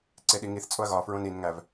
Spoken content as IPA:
ǀ e ɗ i ŋ i θ t͡sʼ o ɐ̯ ɣ ɒ f ɹ õ n i n ŋ æ v

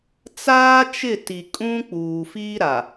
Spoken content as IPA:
t͡s aː˦ t͡ʃ ɪ˦˨ t i˨ kʼ ũ˦ k͡p uː˨ f i˦ ɾ a˨

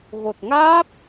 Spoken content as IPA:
ɣ o˨˩ t̚ ŋ aː˦˥ p̚

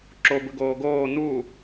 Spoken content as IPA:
ǁ o b ɯ ɡ oː ɡ oː n̪ u

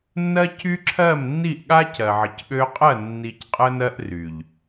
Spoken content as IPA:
nː ɜ˦ c y˦ ǁʰ ɜ˦˨ m nː i˦˨ ʔ ɠ a˦ c ɜ˨ ʕ ə˨ c ɠ ø˧ qʼ ɜ˦˨ nː i˧ c qʼ ə˦ n ɜ˦ ʔ r y˨ ʎ

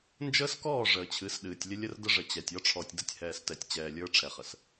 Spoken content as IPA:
n d͡ʒ əː˦ s k ɔː˦˨ ʐ əː˨ t͡ɕʰ ɨ˨˦ s ɗ ɨː˨ tʲ lʲ ə˦ lʲ ə˦ r d ə˦ ʐ ə˨ t͡ɕ ɛ˨ tʲ ɔ˦ ʈ͡ʂʰ ɔ˨ tʲ d ə˦ tʲ h ɛː˨ s t ɛ˨ tʲ t͡ɕ ɛː˨ lʲ ə˞˦ ʈ͡ʂʰ ɛ˨ χ ə˨ s

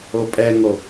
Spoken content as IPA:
o pʼ ɛ ŋ o

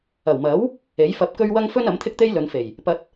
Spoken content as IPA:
ɐ˨˩ w m ɐ˨˥ w | e˨˥ j f ɐ˧ p̚ k ɵ˥ ɥ w ɐ˥ ŋ f ɵ˥ n ɐ˨˥ m t̪ʰ ɪ˥ k̚ t̪ e˥ j l ɵ˨˧ n f e˨˩ j | p ɐ˧ t̚

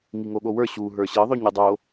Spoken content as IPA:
ŋ i ŋ o ɠ o w ə˞ ɕ u ɦ ə˞ ɕ ɘ ðˤ ø ɲ ɯ dˤ o

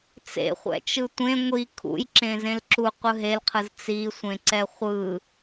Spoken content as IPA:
t͡s ḛ χʷ ɛ̰ t͡ʃ ɯ tʷ ẽ ŋʷ i kʰ ṵ j ǁ ẽ z ẽ l ǁ u qʷ ɯ ɦ e l qʰ ɯ z t͡s i sʷ ẽ ǀ ɛ χʷ ɯ

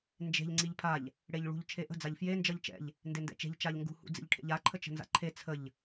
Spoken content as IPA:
n d͡ʒ e̤ ʎ ŋ͡ǀ i ʎ pʰ a ʎ | ɽ e ʎ ɭ ṳ ʎ t͡ʃʰ e ʔ ə̤ d͡z a ʎ f j e n d͡ʒ ʌ ʎ t͡ʃ ɛ̰ ʎ | n d e n d ɛ̰ t͡ʃ e̤ ʎ t͡ʃ a ʎ ŋ ɡ ṳ h ṵ d͡z ḭ ʎ ʈʰ ḛ ʎ a ǃʰ ə t͡ʃ ə̤ n z a̰ ǃʰ e t͡sʰ ə ʎ

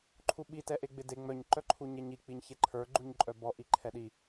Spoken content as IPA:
ǃʰ u ɓ i t ɛ ʔ e ɡ͡b ɪ d e ŋ͡m œ ɲ ǃ œ ǃʰ u ɲ ɛ ɲ i k͡p i ɲ ç e ǃʰ ə˞ ɡ͡ǃ u ɲ ǃʼ œ b ɔ ʔ i ǃʰ ɛ ɗ i

